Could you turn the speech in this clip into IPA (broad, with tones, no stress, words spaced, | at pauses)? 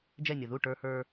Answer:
d͡ʒɛ˦˨nʲʌ˨ ðu˦˨ ʈə˞˦hə˞˦